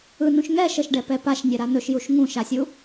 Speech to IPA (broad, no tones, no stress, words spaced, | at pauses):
ɯnũʃ ŋɛ ʃəʃɖɛpɛ paʃnʲɛɾa nɵʃjuʃ ŋũʃasʲu